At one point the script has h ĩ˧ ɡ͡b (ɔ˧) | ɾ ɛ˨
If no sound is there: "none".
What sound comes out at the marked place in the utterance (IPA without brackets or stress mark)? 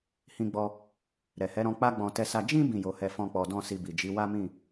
ɔ˧